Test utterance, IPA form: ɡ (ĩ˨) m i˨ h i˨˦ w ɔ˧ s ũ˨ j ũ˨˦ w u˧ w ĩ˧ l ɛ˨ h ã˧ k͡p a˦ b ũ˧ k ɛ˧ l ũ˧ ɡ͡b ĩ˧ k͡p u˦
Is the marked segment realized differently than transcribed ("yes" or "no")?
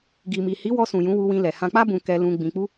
yes